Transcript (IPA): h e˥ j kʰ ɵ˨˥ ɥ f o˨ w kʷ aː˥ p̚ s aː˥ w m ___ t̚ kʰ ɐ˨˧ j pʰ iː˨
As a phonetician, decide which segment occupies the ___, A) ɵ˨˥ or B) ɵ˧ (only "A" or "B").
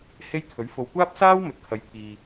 A